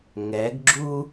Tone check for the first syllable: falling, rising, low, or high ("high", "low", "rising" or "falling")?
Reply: rising